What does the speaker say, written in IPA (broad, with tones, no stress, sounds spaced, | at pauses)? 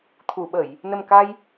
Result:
t̪ʰ u˨˩˨ ɓ ə˨˩˨ j | n ə˨˩ m k a˧ j